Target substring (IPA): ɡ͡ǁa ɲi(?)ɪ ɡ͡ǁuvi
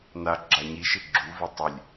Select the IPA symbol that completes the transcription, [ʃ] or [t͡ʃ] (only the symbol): ʃ